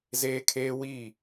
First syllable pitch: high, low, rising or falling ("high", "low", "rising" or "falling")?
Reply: high